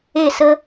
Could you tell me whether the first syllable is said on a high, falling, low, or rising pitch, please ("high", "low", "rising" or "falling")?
falling